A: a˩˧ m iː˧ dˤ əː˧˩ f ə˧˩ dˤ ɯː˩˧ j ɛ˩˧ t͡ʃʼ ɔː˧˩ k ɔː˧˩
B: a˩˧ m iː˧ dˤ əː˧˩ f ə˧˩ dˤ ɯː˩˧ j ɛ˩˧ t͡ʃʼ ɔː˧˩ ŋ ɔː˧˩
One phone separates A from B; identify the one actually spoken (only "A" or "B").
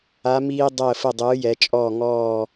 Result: B